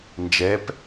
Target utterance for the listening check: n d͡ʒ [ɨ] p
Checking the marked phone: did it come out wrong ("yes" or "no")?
yes